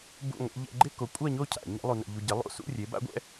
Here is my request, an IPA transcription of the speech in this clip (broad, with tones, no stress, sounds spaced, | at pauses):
b ṵ˥˧ ŋʷ ḛ˦˥ ʎ ɛ̰˧ ɡ͡ǃ ɪ˥˧ k o˨˥ kʷʼ a˥˧ ɲ o˥˧ cʰ a̰˧˩˧ ɲ ɛ̰˦˥ lˠ u˧ n ɛ̰˧ ʎ u˧ ɟ ɪ˨˥ lˠ o̰˧ s ṵ˥˧ rʲ e˨˥ b a̰˦˥ ɡʷ ɛ̰˦˥